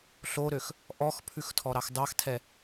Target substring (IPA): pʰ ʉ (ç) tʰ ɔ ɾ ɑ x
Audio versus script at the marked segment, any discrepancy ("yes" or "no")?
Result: yes